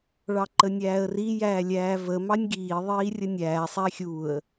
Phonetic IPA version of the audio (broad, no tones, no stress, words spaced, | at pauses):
ɭɑǃənʲæːə̯ri jæːlʲæːvə mɑnʲɡiː ðˤiːrʲənʲæː sˤæxʲuə̯